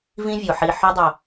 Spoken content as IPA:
v ĩ˦ vʲ o˨ ħ i˧ ħ o˦ dˤ o˧

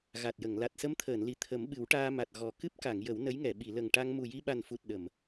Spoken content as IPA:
ɣ a˨˩ t̚ j ə˨˩˨ ŋ l a˨˩ t̚ s ə˧ m t̪ʰ əː˨˩˨ n l i˨˩ t̪ʰ ə˨˩˦ m ɓ ɨ˨˩˦ w ʈ aː˧ m a˨˩ t̚ ɣ ɔ˨˩ k ɨ˦˥ p̚ k a˨˩˨ ŋ j ə˨˩˦ w n ə˧˥ j ŋ ɛ˨˩˨ ɓ i˨˩˨ l ə˨˩ ŋ ʈ a˧ ŋ m u˨˩ j i˧ ɓ a˨˩ n f u˨˩ t̚ ɗ ə˨˩˨ m

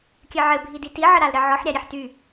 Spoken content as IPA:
kʲ ɘ ʕ ɘ bʱ i d i t i ʕ ə ɾ a l ɾ ɘ ʕ ɔ ħ ɾʲ a ɾʲ e ħ t y

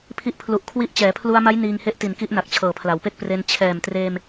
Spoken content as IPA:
pʰ i˦˥ ʔ pʰ l u˨˩ ʔ kʰ w i˦˥ ʔ t͡ɕ ɛː˩˦ pʰ l u˧ a̯ m a˦˥ j n iː˧ ŋ h e˦˥ ʔ t i˨˩ n k i˦˥ ʔ n a˨˩ k̚ t͡ɕʰ ɤː˨˩ pʰ l a˩˦ w p e˥˩ k̚ p r e˧ n t͡ɕʰ ɛː˨˩ m t r eː˧ m

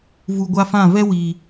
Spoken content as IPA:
v u˧ ɡʷ a˦ f ã˦˨ v ɛ˦ w i˨

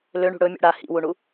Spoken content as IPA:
l ø ɳ ṳ ɽ ɵ mʲ ṵ ɽ a h ḭ w u ɳ u

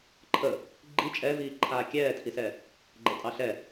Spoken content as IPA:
ǃʰ ə | ɡ͡ǃ i t͡ʃʼ ɛ v iː ǃʰ aː kʲ ɛː tʰ i s ɛ | ɡ͡ǃ ɛ tʼ ɑ ɬ ɛ

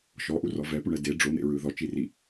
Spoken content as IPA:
ʃ ɔ ʔ u r ɔ v ɛ p u ɳ ɛ d e ɖ͡ʐ o n̪ ḛ ɹ ɯ ð ɔ t͡ʃ i r i

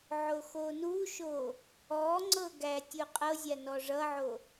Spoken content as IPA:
ʕ o x o n u ʃ o | ɔ ŋ͡ǀ ɤ ɡ æ tʲ u qʼ ɤ zʲ a n ɔ ʐ ʌ ʕ o

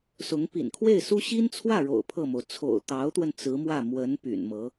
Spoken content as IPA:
s ʊ˧˥ ŋ p ḭ˨˩ n kʰ w e˥˩ ɪ̯ s u˥ ɕ i˥ n t͡sʰ w ä˥˩ ɻ o̰˨˩ ʊ̯ pʰ ɤ˥˩ m o˩ ʊ̯ t͡sʰ o̰˨˩ ʊ̯ t̪ ɑ˧˥ ʊ̯ t̪ w ə˧ n t͡s ɹ̩˧˥ m w ä˥˩ m w ə˧˥ n p y̰˨˩ n m ɤ˧˥

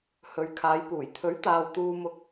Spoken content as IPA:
h ɵ˨ ɥ kʰ aː˨˧ j p uː˨˩ j t̪ʰ ɵ˨˥ ɥ t̪ aː˨ w t̪ uː˨ m ʊ˨˥ k̚

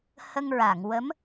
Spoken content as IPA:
h ə˧ ŋ ɹ a˨˩˨ ŋ w ə˧˥ m

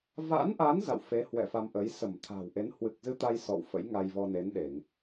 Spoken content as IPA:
v a̰˧˥ n ʔ a˨˦ n z a̰˧˨ w f e˨˦ h w ɛ̰˧˨ f a˧ m ʔ ə˨˦ j s ə˧˩ m t̪ʰ a̤˨˩ w ʔ e˨˦ n h w ɨ˨˩ k̚ z ɨ˧ t̪ a˧ j s ɔ̰˧˨ w f ə̰˧˥ j ŋ a˧ j v ɔ˧ n e˨˦ n ɗ e˧˩˨ ŋ

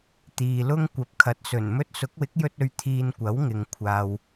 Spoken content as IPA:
t̪ iː˨ l ʊ˥ ŋ kʷ ɐ˨ p̚ kʰ ɐ˨˥ t̚ s ɵ˨˩ n m ɵ˥ t̚ s ʊ˨˥ k̚ w ɪ˨˥ k̚ j ɵ˧ t̚ ɵ˨ ɥ t̪ʰ iː˧ n kʷ ɐ˨˥ w ŋ ɪ˨ ŋ kʷʰ aː˨ w

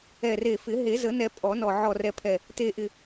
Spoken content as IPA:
ɛ˨˩ r e˨˩ f ɪ˨˩˦ ɦ e˨˩˦ z ə˨˩˦ n ɛ˨˩˦ pʼ ɔ˨˩˦ n ɔ˨˩ ʕ ɔ˨˩ r ɛ˨˩ pʰ ɛ˨˩ | t e˨˩ ʔ ɪ˨˩

